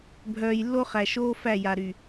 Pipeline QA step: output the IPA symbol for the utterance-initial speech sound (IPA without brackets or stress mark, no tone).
bʱ